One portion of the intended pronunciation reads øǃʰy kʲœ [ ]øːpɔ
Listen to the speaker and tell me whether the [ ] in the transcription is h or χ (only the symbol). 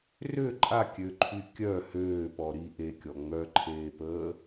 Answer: h